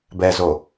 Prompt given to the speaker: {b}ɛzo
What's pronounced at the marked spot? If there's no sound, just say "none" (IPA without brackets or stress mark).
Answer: b